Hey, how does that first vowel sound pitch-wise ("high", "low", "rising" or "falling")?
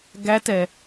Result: rising